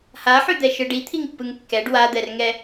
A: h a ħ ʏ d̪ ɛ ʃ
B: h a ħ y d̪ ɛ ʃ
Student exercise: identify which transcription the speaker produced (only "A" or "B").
B